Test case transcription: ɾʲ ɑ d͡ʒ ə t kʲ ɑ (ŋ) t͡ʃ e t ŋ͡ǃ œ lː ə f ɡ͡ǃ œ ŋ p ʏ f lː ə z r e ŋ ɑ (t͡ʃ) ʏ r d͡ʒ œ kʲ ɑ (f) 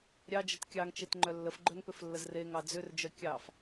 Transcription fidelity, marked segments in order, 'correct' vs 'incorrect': correct, incorrect, correct

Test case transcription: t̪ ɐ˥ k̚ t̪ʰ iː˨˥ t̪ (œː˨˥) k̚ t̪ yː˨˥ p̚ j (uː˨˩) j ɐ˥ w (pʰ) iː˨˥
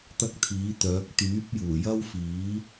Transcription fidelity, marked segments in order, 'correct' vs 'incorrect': correct, correct, incorrect

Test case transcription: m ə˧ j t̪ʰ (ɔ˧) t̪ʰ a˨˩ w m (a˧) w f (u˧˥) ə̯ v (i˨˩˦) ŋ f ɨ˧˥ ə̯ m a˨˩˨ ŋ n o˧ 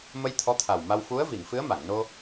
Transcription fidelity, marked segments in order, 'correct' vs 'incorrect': incorrect, correct, correct, incorrect

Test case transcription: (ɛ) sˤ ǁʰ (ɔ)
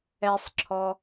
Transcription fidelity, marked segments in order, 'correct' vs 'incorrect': correct, correct

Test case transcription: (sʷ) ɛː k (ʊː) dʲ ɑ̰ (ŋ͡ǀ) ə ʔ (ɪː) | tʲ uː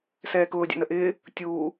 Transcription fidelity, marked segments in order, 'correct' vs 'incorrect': incorrect, correct, incorrect, correct

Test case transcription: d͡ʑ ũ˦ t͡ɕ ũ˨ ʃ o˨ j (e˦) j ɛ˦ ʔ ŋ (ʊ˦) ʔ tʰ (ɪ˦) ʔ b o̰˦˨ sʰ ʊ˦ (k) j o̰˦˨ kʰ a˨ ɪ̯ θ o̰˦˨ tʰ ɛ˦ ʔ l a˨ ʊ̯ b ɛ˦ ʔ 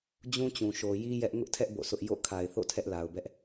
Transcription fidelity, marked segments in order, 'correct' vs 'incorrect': incorrect, correct, incorrect, incorrect

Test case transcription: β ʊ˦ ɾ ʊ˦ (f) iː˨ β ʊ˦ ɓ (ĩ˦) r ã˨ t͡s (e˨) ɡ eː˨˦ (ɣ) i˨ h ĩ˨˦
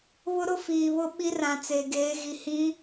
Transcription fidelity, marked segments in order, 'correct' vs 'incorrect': correct, incorrect, correct, correct

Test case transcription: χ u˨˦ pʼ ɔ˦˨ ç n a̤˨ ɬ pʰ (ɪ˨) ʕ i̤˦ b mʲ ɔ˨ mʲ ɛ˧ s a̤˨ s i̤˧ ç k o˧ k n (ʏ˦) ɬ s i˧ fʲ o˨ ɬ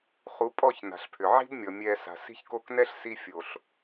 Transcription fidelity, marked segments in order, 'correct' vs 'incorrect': incorrect, incorrect

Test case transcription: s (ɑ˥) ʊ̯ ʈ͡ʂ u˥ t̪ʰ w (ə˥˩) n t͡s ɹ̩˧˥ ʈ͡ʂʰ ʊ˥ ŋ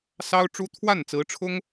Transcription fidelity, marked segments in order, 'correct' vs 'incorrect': correct, incorrect

